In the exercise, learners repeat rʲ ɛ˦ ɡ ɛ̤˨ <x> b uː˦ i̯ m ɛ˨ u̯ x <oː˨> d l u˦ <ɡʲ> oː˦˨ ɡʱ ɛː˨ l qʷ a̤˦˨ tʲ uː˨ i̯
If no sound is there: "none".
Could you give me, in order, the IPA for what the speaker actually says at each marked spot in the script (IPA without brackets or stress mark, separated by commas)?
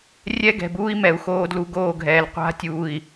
none, oː˦, ɡ